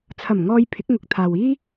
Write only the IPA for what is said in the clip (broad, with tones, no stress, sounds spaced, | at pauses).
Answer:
t͡sʰ ɐ˨˩ m ŋ ɔː˧ j pʰ ɪ˨˥ k̚ ŋ ʊ˨˥ k̚ t̪ʰ aː˨ w iː˥